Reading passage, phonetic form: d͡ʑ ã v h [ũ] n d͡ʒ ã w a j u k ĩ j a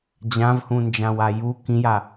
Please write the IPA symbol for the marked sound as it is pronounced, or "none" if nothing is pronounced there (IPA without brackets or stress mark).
ũ